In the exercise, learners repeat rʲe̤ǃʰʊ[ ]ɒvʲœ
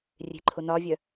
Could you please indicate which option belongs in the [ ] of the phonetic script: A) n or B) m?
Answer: A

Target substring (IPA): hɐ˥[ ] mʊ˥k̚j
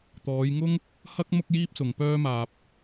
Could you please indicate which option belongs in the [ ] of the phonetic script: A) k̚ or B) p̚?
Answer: A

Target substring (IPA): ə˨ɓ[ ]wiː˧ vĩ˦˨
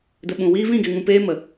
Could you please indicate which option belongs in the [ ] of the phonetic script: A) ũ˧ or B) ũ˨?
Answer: B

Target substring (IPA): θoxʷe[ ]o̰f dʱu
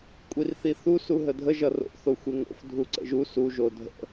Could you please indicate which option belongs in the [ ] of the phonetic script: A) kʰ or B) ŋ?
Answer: B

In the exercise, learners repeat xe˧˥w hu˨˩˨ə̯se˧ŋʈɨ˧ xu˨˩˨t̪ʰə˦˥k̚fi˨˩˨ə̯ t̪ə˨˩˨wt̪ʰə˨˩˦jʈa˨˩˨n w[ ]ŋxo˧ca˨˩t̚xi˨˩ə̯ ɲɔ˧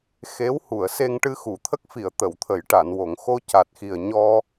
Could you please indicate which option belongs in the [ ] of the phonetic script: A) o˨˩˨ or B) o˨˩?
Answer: A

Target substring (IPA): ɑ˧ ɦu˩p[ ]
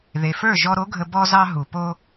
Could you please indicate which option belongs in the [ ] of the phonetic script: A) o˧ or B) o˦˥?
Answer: A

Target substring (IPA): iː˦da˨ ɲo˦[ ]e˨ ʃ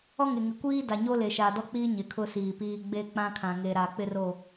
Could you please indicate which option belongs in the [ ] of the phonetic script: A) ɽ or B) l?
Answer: B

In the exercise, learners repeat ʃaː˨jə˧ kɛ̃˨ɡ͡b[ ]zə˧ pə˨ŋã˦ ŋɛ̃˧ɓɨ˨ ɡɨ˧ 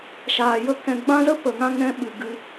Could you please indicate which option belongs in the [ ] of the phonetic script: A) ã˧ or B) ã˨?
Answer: A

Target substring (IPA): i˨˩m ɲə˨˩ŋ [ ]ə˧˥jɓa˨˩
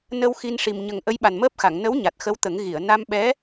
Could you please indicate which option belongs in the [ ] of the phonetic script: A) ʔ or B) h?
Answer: A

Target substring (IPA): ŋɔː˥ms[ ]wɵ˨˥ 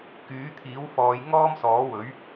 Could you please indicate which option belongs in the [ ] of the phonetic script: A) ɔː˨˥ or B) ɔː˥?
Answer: A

